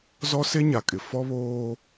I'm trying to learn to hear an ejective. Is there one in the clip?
yes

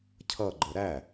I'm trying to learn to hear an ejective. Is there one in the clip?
no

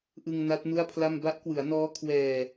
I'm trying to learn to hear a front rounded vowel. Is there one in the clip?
no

